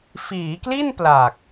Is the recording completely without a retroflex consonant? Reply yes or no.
yes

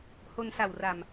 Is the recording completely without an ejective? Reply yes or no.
yes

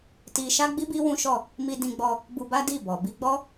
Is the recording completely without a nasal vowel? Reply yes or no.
no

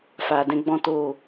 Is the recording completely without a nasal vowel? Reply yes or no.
no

